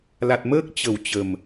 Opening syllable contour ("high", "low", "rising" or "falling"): low